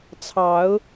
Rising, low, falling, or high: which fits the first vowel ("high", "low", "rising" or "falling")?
rising